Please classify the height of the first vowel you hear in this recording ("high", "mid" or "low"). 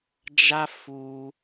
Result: low